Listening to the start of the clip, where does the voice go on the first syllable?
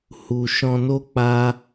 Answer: low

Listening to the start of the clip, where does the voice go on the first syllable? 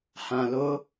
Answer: low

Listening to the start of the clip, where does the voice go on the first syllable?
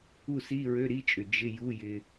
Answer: falling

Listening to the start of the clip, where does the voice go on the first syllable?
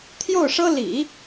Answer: falling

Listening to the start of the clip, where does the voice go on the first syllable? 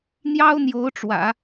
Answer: high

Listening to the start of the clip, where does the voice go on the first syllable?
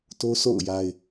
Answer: high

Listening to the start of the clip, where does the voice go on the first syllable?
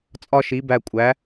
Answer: high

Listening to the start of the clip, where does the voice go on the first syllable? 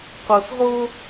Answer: low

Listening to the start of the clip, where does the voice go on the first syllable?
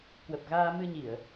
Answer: low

